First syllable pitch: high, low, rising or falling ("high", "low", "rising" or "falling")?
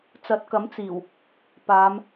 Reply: rising